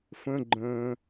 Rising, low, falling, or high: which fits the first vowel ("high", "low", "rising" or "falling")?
high